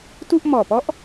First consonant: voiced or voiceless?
voiceless